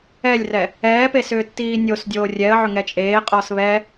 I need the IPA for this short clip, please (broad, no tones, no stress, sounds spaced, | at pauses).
ɛ lʲ r ɛ | ɛː p e s ʏː tː iː nʲ o s dʲ oː rʲ ɛ ə̯ ʕ ʏ ŋ ɛ t͡ʃʼ eː qʼ ɔ s β ɛ